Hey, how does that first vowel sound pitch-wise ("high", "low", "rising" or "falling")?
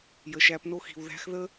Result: low